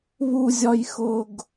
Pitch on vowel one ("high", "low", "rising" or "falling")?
low